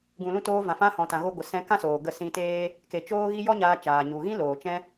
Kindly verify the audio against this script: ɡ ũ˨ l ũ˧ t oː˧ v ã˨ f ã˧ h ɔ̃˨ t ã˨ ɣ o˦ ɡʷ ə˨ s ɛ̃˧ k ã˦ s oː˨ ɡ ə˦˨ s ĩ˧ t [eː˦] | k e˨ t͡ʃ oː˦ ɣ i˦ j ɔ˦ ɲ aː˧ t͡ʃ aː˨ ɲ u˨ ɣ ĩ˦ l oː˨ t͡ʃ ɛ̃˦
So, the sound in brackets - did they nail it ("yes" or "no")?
yes